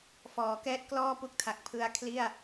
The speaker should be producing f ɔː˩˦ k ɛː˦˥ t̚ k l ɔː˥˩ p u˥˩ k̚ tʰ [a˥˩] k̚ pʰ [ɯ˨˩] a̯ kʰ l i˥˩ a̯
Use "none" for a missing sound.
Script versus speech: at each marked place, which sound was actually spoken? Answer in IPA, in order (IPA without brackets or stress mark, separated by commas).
a˨˩, ɯ˦˥